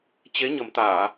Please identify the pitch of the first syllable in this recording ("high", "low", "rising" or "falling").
rising